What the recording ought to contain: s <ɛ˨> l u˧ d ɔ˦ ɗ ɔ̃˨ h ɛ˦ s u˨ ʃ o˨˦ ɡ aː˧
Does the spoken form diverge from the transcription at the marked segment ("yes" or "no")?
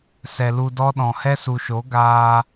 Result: no